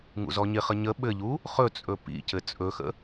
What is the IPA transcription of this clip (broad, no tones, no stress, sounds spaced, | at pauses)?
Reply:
ŋ ṵ z ɔ ɲ ɪ χ ə ɲ ə ɓ ɘ ʎ u | χ ɵ t͡sʼ ɵ p ḭ c ɘ t͡sʼ ɵ x ə̰